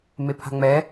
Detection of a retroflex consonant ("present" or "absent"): absent